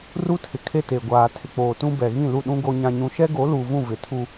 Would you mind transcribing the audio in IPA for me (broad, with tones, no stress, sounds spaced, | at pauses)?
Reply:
r u˦ tʰ ɪ˨ kʰ e˦ t e˨ ɡʷ aː˨ tʰ ɪ˨ k͡p oː˨ t ũ˦ b ɛ˨ ɣ ĩ˦˨ l u˦˨ ɗ ũ˦ ɡ o˦ ɲ ã˦ ɲ ũ˦ ʃ ɛ˦ ɡ o˨˦ l uː˨ v ũ˦˨ v ɪ˨ tʰ u˦